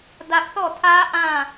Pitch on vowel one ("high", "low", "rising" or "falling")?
high